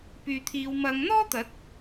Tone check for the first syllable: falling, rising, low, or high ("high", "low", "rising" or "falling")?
low